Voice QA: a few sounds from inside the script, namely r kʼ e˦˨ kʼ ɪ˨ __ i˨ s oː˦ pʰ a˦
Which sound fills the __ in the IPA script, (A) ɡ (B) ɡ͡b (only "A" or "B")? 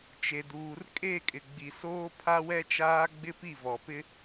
B